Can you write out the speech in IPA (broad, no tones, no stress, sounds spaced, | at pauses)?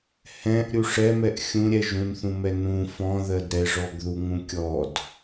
h ɛ̃ ʔ ɾʲ u ʂ ɛ m ɛ ʔ xʲ ũ ɾʲ ɛ ʒ ũ n θ ũ m ɛ n ũ f ɔ̃ ð ɜ d ɾ ɛ ʐ ɔ ɡ ð u ŋ ũ kʲ ɔ d